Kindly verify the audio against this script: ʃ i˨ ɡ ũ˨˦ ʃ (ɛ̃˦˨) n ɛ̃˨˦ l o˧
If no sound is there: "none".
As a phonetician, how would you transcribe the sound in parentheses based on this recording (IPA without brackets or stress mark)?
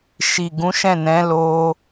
ɛ̃˦˨